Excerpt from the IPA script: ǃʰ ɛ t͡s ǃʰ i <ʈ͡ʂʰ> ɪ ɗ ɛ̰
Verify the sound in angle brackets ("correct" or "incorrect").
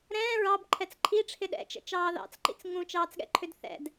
correct